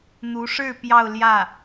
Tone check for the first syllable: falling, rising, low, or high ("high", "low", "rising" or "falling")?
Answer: rising